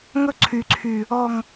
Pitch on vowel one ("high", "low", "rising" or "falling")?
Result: high